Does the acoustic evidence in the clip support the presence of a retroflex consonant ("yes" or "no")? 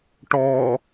yes